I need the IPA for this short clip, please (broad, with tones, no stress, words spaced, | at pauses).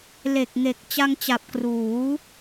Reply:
le˨˩k̚ŋe˨˩k̚ t͡ɕa˧ŋt͡ɕa˨˩p̚ kruː˩˦